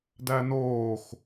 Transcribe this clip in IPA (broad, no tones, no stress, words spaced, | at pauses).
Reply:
dænoːx